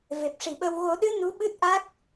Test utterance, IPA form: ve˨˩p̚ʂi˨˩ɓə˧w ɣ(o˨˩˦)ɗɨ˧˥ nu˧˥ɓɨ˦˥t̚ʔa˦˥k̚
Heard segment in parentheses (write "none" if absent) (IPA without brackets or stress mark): o˨˩˦